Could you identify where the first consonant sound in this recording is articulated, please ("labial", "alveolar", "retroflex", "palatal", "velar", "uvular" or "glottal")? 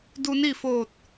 alveolar